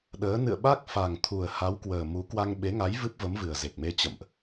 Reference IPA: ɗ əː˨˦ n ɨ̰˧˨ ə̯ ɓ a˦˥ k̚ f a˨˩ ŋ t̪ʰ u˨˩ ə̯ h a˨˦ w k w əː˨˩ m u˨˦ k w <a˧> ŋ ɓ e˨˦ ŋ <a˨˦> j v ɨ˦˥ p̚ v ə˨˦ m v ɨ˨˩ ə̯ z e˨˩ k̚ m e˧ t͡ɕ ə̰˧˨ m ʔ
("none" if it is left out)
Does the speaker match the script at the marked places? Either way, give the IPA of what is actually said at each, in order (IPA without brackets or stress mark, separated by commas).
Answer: a˧, a˨˦